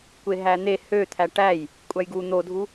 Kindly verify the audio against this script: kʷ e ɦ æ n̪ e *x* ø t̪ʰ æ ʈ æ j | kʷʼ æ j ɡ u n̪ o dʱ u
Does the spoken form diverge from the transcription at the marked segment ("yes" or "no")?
yes